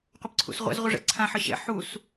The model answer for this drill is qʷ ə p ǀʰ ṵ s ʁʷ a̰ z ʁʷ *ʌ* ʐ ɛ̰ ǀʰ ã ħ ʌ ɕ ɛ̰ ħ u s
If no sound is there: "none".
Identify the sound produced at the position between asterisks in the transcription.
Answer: ʌ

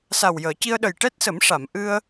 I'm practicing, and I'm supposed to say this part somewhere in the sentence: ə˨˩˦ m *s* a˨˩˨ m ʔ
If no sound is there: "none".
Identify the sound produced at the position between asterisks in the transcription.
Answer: ʂ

